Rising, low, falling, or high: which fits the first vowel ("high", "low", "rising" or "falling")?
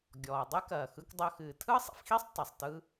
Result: low